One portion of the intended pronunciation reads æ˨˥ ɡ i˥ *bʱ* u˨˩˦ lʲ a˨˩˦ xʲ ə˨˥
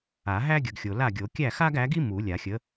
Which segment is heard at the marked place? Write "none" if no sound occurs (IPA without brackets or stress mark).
m